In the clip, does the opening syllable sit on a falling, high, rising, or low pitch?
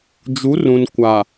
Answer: rising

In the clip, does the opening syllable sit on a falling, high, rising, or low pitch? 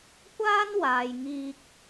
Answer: high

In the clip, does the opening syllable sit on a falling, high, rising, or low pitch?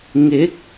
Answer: rising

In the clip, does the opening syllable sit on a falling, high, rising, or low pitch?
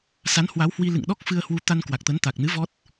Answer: rising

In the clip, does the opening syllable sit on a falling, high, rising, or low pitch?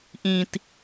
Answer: low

